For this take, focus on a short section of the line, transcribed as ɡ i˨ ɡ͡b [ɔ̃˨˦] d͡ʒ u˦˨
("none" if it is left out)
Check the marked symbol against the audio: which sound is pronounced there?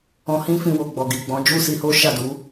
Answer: ɔ̃˨˦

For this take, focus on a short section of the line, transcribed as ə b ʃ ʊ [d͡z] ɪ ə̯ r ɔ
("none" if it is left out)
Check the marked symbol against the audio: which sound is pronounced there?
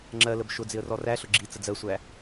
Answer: d͡z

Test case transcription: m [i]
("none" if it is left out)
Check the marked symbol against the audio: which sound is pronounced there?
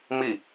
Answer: i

